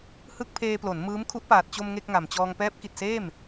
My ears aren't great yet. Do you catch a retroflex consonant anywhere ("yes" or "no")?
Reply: no